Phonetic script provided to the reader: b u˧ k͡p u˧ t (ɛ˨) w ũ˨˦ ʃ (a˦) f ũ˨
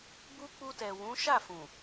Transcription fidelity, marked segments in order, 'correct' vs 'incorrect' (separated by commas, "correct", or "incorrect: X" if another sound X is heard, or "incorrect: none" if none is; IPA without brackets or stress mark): correct, incorrect: a˦˨